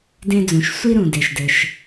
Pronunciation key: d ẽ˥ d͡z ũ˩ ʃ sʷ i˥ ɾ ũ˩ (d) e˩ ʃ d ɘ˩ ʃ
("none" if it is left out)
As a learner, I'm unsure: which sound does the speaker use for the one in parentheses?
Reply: d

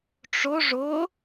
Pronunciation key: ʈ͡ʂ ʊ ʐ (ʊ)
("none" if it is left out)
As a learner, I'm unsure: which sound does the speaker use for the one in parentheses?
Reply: ʊ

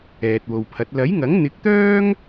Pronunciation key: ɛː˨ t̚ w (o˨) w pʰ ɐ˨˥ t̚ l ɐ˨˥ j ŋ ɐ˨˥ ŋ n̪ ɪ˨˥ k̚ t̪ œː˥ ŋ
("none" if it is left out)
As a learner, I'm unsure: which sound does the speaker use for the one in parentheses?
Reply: o˨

